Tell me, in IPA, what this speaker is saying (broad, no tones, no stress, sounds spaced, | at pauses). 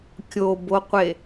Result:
kʲ o b o qʷ e